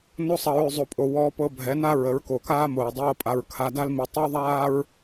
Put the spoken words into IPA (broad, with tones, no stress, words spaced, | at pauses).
no˧sˤʌ˨ɹʉ˨ zˤo˨pʼo˨ wɔː˧pɤ˧bʱɛ˨˦na˦ ɹə˨˦ɹko˨kaː˦mo˨ɹ dˤɤː˦pʼa˧ɹ kʰa˧da˦lmi˧ tˤʉ˦wðˤaː˦ɹ